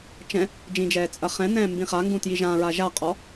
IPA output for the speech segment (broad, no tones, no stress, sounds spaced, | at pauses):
t͡ʃ ɛ̃ | d͡ʒ ĩ d͡ʒ ɛː t͡sʼ ɐ χ ɛ̃ n ɛ̃ː m b ĩ χ a ŋ ɡ ũ t j i ʒ ã ɹ a ʒ a qʼ ɔ